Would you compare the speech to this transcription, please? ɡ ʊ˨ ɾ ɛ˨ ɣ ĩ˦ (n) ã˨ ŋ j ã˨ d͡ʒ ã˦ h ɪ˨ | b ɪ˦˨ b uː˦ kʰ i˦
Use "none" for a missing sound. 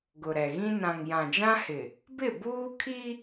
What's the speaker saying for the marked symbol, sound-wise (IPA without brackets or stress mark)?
n